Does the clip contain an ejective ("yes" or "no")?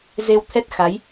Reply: no